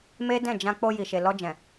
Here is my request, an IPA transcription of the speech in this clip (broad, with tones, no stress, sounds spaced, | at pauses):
m e˦ d ɛ̃˦˨ d͡ʒ ã˧ k͡p o˧ j i˨ ʃ e˨ l ɔ˧ d͡ʒ ɛ̃˨